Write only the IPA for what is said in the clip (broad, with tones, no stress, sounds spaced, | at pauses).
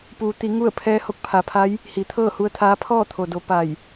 p uː˩ t̪ i˩˧ ŋ u˥˨ ə̯ pʰ ɛː˧˥ h o˧ k̚ pʰ a˩˧ pʰ a˧˥ j | h i˩ t̪ʰ ɤː˥˨ h u˧ ə̯ t̪ʰ aː˧˥ pʰ ɔː˥˨ t̪ʰ o˩ d o˩˧ p a˧˩ j